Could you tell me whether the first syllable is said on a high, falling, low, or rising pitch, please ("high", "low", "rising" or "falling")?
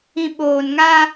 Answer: low